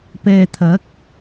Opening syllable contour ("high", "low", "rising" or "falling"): low